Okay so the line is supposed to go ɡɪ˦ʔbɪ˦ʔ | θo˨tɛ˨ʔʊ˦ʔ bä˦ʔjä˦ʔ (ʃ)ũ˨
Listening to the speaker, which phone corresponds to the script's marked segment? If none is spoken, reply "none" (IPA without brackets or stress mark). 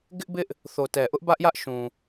ʃ